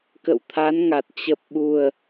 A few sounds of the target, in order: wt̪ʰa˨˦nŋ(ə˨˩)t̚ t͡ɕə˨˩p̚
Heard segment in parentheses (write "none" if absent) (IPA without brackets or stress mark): a˨˩